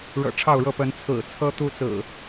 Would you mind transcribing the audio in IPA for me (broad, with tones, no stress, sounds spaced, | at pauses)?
ɻ ɤ̰˨˩ ʈ͡ʂʰ ɑ˥˨ ʊ̯ ɻ ɤ˥˨ p ə˨˦ n t͡sʰ ɹ̩˨˩ t͡sʰ ɤ˦ t̪ u˦ t͡s ɹ̩˨˩